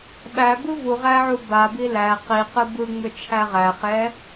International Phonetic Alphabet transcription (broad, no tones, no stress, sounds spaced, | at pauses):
ɓ æ b ɯ v u ʁ æ ʕ u b a b i l æ q i q ɯ b ɯ ŋ͡m ʏ t͡ʃʰ æ ʁ æ χ ɛ